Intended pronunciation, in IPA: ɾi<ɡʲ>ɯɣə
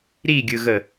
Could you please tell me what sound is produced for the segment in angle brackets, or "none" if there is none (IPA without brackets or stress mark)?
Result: ɡʲ